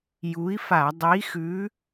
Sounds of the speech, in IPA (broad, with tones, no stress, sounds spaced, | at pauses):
j u˨˥ i̯ f a˧˩˧ dˤ i˨˥ x ʉ˨˥